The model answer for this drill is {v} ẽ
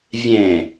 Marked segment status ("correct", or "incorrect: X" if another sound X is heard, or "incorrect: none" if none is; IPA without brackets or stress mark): incorrect: vʲ